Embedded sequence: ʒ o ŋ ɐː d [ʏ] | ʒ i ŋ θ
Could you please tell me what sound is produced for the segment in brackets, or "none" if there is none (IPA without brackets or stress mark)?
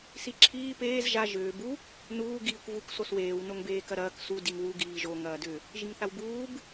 ʏ